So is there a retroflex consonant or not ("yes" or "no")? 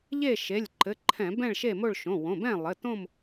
yes